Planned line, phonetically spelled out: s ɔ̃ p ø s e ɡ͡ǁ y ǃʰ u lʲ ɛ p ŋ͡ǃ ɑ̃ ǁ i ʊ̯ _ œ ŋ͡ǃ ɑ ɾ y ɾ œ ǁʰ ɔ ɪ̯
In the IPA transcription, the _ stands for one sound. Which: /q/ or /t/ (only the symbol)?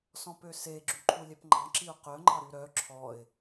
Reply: q